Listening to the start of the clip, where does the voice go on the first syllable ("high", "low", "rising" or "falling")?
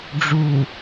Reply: low